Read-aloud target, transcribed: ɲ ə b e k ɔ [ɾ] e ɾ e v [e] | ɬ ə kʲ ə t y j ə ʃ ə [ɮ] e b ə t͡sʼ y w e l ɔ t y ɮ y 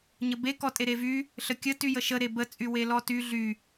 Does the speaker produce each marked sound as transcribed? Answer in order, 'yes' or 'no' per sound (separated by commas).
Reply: no, no, no